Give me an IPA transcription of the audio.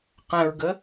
q ɛ̃ ɹ ɡ ə

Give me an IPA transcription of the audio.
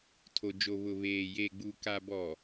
tʰ o˨ d͡ʒ o˨ β ʊ˨ β eː˨ j eː˨ ɡ͡b uː˨ k a˨ b ɔ˨

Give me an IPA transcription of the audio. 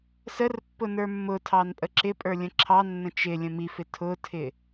s ə r pː ʊ n ə˞ mː ʊ tʰ ɑ n pʼ ə ǁ ɪ pʼ ə˞ lʲ ə̃ ǁʰ ɑ nː ə̃ t͡ʃ ɪ lʲ ə̃ m i f ɪ tʰ ʊ tʰ ɪ

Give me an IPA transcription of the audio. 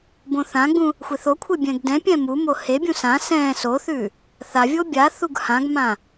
b õ θ ã ɡ͡b ũ | xʷ e θ o kʷʰ e bʲ ɛ̃ ɡ d ɛ̃ pʲ ɛ̃ m u m o h e bʲ ũ s ã s ɛ̃ s o θ ʉ | θ a vʲ o bʲ a θ u ɡ h ã ɡ m ã

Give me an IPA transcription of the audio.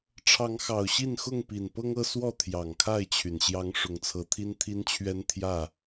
ʈ͡ʂʰ ɑ˨˦ ŋ x ɑ˨˩ ʊ̯ ɕ i˥˨ n x ʊ˥˨ ŋ p i˨˩ n p ɤ˦ ŋ ɤ˦ s w ɔ˥˨ t̪ʰ j ɑ˨˩ ŋ kʰ a˥˨ ɪ̯ t͡ɕʰ y˩ n ɕ j ɑ˨˦ ŋ ʂ ʊ˨˦ ŋ t͡sʰ ɤ˨˦ t̪ʰ i˦ n t̪ʰ i˦ n t͡ɕʰ ɥ ɛ˦ n t̪ʰ j ä˥˨

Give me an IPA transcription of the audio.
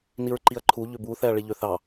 n i ɹ ǃ i ɐ̯ ǃʰ u ʎ ʏ b u θ ɛ ɐ̯ ɭ i ʎ ø θ ɑ

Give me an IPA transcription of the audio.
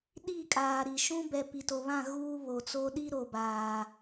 ɗ i˦˨ kʼ aː˨ ɾ i˨ ʃ ũ˦ b ɛ˨ p i˨ t o˨ β ã˦˨ ɣ uː˦ β o˨ t͡s o˦ ɗ i˦ ɾ o˨ b aː˨

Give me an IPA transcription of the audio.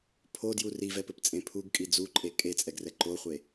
pʰ o d j u r i v ɛ p ɘ p t͡sʼ ẽ pʰ u ɡ kʼ i d͡z u ǃʼ e kʼ e t͡sʼ ɛ ɡ r ɛ ǃ o χʷ e

